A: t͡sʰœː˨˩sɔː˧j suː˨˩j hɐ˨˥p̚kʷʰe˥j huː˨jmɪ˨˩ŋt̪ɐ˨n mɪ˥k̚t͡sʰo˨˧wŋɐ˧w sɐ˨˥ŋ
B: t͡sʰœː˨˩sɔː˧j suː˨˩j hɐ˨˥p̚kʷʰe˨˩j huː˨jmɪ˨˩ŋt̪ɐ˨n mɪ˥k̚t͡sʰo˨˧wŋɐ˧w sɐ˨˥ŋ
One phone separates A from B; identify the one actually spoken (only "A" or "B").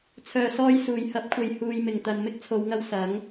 B